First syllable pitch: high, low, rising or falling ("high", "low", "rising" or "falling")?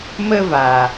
high